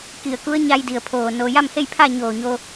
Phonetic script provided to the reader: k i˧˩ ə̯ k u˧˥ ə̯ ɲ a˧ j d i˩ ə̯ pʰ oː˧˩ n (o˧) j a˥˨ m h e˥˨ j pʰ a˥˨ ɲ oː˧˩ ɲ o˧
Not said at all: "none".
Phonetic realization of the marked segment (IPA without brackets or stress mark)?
o˧